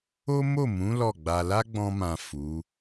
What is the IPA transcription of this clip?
o˦ m o˦˨ m ũ˨˦ l ɔ˦˨ ɡ͡b a˧ l a˦ ɡ͡b ɔ̃˧ m ã˨ f u˨˦

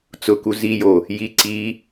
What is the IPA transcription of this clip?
t͡s ʊ k u z i j o | j i ǀ i

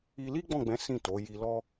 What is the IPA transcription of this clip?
i˧ l i˦ ɡ͡b ɔ̃˦˨ ɡ͡b ɛ̃˨˦ s ĩ˦˨ t o˨˦ j i˧ l ɔ˦

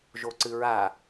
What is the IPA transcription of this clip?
ʒ o ǀ ɨ ɹ a

